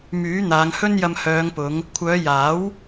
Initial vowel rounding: rounded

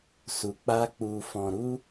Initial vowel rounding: rounded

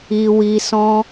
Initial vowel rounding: unrounded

